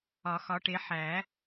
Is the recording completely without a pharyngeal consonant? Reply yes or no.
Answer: no